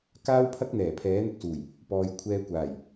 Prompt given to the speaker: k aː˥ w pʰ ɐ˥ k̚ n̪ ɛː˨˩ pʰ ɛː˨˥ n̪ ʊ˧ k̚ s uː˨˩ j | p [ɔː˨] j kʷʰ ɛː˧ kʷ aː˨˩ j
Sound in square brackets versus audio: correct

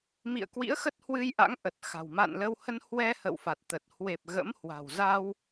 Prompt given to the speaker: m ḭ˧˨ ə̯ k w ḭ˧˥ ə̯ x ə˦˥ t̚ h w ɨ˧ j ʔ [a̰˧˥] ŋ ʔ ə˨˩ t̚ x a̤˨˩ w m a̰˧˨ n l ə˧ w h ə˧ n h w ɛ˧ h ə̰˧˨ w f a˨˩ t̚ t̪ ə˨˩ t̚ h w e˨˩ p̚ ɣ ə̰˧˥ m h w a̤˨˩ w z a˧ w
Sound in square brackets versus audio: correct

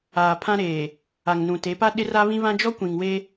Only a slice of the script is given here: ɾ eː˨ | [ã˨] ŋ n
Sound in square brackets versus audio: incorrect: a˨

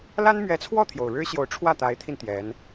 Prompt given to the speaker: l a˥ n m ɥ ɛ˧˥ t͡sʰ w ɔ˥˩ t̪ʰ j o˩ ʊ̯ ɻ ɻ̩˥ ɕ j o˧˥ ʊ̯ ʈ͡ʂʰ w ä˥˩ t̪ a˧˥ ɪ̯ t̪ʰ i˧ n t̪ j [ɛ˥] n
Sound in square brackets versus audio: incorrect: ɛ˧˥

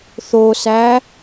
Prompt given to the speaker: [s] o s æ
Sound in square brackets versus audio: incorrect: θ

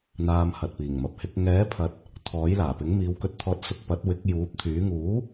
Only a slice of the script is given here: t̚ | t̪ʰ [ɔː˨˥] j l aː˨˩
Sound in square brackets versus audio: correct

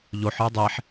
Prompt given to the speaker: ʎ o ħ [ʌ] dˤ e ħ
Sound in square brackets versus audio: incorrect: ə˞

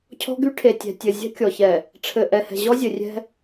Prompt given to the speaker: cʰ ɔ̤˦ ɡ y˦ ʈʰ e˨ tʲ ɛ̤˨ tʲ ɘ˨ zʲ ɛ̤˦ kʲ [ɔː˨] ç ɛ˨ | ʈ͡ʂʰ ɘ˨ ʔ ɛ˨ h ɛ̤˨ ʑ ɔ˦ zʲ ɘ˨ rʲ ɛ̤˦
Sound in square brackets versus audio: incorrect: ɔ˨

